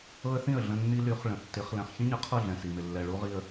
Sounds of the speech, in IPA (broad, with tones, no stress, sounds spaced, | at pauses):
ɤ˦ ə̯ θ ĩ˦˨ ə̯ ɮ ə̃˦ nː i˦ l y˨˦ χ ɭ ə̃˨ tː ɪ˨˦ χ l ɛ̃˨ χ ç ĩ˦ ɲ ə˨ qʰ ɤ˦˨ ɮ ɛ̃˨ s i˨ m ɪ˨ lː ɛ˨ ɭ u˦ ʁ i˦ ə̯